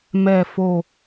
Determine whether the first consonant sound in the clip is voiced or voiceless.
voiced